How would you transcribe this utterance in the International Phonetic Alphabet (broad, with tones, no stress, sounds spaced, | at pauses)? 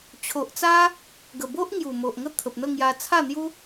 t͡ɕʰ o˨ ʔ t͡s a˦ | ɡ ə˨˩ b o˦ ʔ ŋ j u˨˩ m o˨ ʔ ŋ ə˥˧ t̪ʰ ə˨ p̚ n̪ ə˥˧ ŋ j a˧ t͡sʰ a˥˧ n̪ j u˦